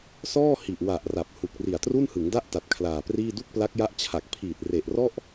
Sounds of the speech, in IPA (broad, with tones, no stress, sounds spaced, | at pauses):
s ɔː˥˩ h i˨˩ ʔ w a˨˩ ʔ r a˨˩ p̚ h u˨˩ k̚ r i˨˩ a̯ t r u˥˩ n h ɯ˩˦ ŋ d a˥˩ ʔ t a˨˩ t̚ kʰ l aː˨˩ p r iː˥˩ d u˥˩ k̚ p l a˦˥ k̚ j a˦˥ ʔ t͡ɕʰ a˨˩ k̚ pʰ iː˨˩ t̚ r e˨˩ ʔ r ɔ˥˩ ʔ